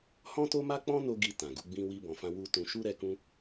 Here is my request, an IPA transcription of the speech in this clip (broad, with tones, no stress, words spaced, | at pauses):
hɔ̃˦to˦ma˦ k͡pɔ̃˦no˧ ɡi˧ tã˨ɡu˨˦ɡ͡bĩ˦ wi˧ bɔ̃˨fã˧ wu˧ tũ˧ ʃu˦ɾɛ˧kũ˦